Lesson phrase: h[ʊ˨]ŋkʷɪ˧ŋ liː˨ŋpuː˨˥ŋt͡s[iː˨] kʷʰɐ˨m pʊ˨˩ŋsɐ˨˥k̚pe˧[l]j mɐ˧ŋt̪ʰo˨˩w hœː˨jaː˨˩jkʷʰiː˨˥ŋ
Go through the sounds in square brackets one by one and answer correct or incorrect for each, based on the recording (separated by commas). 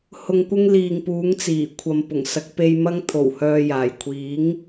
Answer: correct, incorrect, incorrect